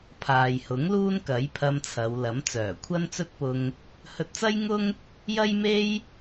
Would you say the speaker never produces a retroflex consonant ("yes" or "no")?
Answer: yes